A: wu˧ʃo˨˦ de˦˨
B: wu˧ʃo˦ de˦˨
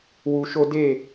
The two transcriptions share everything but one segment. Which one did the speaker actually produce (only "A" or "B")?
B